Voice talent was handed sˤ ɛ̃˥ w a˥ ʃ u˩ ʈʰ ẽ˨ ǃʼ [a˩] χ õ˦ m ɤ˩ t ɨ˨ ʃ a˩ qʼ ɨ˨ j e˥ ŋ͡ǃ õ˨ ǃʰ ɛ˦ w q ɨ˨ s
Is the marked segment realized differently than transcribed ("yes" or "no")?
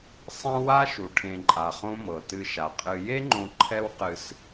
no